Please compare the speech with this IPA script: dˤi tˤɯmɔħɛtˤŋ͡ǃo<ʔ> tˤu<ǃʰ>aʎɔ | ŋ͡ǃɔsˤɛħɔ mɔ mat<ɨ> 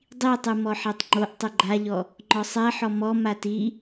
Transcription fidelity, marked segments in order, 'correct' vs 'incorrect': correct, incorrect: ɡ͡ǃ, incorrect: i

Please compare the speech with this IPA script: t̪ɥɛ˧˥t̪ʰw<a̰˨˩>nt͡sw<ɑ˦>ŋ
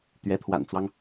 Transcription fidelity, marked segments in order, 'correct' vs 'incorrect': correct, correct

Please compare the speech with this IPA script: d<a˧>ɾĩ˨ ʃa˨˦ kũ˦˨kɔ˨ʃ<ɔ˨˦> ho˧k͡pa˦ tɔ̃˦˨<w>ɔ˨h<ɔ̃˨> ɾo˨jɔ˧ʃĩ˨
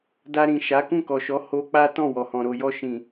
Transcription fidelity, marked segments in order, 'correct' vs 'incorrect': correct, correct, correct, correct

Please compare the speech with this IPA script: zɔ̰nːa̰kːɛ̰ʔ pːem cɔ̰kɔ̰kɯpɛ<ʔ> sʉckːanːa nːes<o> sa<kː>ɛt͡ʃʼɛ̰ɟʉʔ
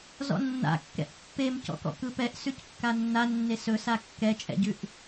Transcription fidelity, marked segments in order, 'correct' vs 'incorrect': correct, incorrect: ɵ, correct

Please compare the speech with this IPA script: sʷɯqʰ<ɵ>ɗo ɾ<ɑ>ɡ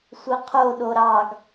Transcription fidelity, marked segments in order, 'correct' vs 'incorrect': incorrect: o, correct

